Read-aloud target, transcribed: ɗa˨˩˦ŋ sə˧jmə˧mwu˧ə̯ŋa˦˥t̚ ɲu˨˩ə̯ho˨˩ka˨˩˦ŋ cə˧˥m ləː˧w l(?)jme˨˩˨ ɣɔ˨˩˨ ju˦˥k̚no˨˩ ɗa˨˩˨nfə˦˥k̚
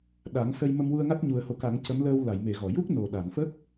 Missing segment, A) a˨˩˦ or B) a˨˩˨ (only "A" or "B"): B